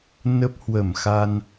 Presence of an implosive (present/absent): absent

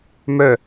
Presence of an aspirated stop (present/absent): absent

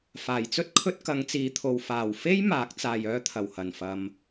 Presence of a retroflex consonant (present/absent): absent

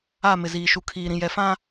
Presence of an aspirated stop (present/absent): present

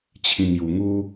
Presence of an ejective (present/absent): absent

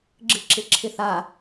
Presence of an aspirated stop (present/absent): present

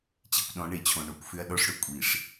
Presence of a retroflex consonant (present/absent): present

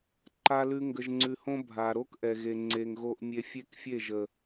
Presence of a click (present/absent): present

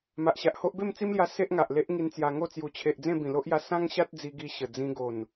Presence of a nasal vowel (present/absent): present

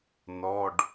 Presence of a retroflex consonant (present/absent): present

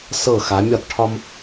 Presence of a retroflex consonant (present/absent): present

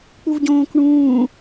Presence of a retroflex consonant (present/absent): present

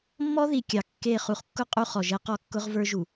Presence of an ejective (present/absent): present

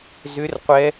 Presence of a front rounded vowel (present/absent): present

